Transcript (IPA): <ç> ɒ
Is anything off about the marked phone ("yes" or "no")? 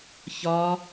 no